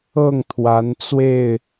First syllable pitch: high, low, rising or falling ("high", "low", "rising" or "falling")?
falling